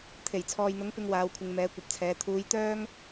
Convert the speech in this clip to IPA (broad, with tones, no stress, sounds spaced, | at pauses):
t̪ʰ e˨˩ j t͡sʰ ɔː˨ j n̪ ʊ˨˥ ŋ p ɪ˧ ŋ w aː˨˧ w kʷʰ ɪ˨ ŋ m ɛː˨˧ kʷ ɐ˨ p̚ t͡sʰ ɛː˨˧ t̪ʰ uː˨˧ j t̪ œː˥ ŋ